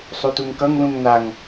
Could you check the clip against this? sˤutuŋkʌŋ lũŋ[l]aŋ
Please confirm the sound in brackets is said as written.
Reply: no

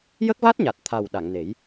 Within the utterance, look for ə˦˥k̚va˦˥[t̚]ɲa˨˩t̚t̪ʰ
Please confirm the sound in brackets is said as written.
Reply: yes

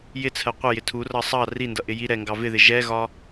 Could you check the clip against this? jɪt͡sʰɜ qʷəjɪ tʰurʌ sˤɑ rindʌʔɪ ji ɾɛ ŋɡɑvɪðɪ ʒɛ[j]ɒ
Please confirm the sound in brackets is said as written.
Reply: no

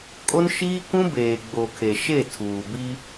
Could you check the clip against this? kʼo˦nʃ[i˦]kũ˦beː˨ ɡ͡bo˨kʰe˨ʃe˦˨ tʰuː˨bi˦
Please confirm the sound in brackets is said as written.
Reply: no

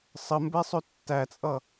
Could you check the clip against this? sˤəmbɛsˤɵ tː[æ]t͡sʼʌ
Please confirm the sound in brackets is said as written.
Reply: yes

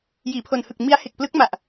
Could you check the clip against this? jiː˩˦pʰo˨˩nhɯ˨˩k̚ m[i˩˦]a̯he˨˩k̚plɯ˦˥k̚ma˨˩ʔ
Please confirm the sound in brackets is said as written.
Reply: no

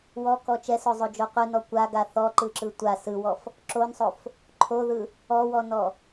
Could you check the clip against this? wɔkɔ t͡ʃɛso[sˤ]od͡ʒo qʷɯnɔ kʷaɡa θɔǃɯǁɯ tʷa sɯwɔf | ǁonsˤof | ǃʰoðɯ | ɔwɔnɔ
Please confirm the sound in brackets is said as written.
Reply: no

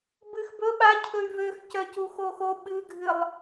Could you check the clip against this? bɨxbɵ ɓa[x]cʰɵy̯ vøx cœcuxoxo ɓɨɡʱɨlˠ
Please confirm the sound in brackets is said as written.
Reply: no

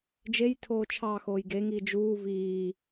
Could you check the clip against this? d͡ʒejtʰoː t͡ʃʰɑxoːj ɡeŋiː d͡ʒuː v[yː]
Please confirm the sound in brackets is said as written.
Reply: no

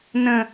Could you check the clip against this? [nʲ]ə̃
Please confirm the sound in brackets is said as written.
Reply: no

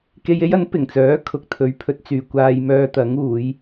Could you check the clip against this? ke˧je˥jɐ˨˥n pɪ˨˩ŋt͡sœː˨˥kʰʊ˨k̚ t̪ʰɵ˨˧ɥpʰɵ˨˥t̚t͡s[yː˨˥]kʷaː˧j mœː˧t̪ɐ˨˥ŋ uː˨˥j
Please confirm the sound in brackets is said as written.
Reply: no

